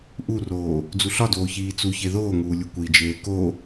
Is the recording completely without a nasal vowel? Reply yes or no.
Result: yes